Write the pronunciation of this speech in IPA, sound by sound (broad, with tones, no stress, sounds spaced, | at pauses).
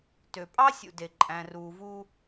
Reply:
t ø˨ pʼ ɑ˦ sʲ ṵ˨ d e˨ ǃʼ æ̃˨ r uː˨ v u˦